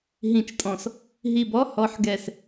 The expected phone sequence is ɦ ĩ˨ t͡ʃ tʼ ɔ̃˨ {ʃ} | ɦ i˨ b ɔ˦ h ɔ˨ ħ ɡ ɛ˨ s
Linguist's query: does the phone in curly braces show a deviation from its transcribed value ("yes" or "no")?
yes